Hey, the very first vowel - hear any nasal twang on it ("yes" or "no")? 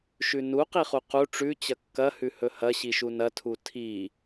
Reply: no